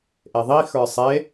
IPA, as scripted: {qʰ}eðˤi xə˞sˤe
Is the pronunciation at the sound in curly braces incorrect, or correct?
incorrect